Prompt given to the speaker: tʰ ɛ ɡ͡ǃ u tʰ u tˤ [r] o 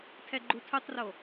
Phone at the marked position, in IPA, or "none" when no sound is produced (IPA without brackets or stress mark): r